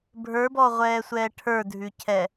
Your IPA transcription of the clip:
bʱ ə˞ b ɔ ʁʷ ɛː sʷ ɛː ʈʰ ə˞ dʱ ʉ cʰ ɛ

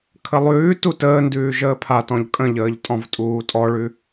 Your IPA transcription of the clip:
kʰ ə lˠ ʉː t u t əː n d ʉː ʒ əː pʰ a t ɔ̃ ʎ kʼ ə̃ ʎ əː ʎ tʼ ɔ̃ v tʼ uː tʼ ɔ ɭ ʉ

